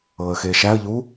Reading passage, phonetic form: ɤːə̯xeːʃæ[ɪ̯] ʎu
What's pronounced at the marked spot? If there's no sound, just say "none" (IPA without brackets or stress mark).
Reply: ə̯